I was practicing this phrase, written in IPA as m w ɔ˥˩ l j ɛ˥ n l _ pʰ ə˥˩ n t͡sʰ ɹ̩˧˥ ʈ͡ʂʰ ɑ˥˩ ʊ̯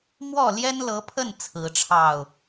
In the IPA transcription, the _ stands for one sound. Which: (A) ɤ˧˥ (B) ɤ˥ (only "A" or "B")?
A